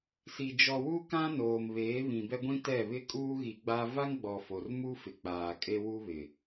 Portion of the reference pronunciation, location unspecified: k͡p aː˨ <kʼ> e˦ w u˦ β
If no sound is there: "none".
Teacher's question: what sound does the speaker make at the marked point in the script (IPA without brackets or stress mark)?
kʼ